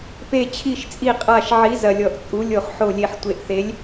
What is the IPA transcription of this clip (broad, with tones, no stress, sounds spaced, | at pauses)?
p e˨˩ t͡ɕʰ i˨˩ ʃ t͡sʼ i˨˩ qʼ a˨˩ ʃ ʕ i˨˥ z ɐ˨˩ lʲ ɔ˨˩ ʔ t͡sʼ u˨˥ lʲ o˨˩ χ ħ o˨˩ lʲ e˨˩ ħ tʷ e˨˩ ʔ θ e˨˥ lʲ